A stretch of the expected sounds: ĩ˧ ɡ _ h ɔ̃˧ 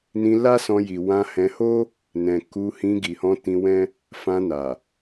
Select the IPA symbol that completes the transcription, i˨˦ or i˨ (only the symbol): i˨